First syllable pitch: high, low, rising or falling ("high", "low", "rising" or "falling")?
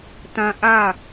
high